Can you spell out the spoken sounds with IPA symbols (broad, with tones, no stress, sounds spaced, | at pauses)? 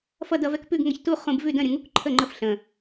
f ʌ˥˨ d ʌ˧ v ɛ˧ k p ʉ˥˨ ɡ ŋ ʌ˧ ç t u˥˨ χ ũ˧ b v ʉ˥˨ d ə̃˥˨ ɾʲ ə̃˧ ŋ u˥˨ k ǃʰ ə˥˨ ŋ͡ǃ ə˥˨ f ɬ ə̃˨˩